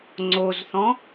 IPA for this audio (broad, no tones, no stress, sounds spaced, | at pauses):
ŋ͡ǀ o z θ ɔ̃